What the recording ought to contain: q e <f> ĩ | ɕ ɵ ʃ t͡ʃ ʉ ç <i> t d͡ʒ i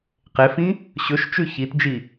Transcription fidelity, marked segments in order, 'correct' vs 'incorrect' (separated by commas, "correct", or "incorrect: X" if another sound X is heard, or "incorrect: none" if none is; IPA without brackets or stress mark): correct, correct